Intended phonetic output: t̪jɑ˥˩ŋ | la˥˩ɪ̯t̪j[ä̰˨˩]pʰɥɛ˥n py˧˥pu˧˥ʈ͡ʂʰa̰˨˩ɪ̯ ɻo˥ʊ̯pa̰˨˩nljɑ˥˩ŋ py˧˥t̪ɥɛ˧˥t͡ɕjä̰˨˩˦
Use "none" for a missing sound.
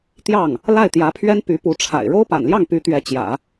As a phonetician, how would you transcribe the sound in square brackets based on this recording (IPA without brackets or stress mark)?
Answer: ä˧˥